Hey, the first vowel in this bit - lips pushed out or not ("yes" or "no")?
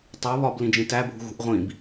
yes